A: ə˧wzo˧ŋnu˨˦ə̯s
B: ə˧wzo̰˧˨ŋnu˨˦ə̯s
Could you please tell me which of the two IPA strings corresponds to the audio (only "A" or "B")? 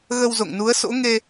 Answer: B